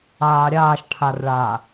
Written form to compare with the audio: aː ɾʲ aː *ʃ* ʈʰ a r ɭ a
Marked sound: correct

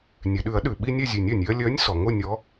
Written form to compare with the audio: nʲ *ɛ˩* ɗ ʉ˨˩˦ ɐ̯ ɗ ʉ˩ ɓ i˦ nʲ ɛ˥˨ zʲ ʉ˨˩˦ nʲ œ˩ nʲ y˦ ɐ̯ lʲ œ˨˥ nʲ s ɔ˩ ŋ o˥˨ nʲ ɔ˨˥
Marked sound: correct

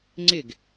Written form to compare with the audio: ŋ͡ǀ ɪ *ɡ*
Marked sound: correct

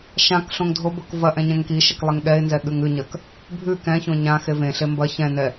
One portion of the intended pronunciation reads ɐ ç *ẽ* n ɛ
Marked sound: incorrect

